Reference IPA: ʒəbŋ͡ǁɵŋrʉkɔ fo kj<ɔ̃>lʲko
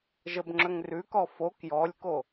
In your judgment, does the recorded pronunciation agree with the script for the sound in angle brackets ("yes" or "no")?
no